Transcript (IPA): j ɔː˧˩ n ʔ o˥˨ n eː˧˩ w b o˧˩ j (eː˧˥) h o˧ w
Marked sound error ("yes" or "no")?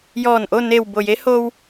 yes